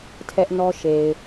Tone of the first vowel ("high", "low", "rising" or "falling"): high